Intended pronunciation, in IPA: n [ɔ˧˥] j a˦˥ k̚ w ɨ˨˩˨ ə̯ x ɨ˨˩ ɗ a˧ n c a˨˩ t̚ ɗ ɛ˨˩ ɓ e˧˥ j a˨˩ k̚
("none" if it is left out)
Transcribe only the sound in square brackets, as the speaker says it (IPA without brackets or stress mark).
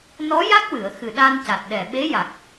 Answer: ɔ˧˥